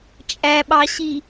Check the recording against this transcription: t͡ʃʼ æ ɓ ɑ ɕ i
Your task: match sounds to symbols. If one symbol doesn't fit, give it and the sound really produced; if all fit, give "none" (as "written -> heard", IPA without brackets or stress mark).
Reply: none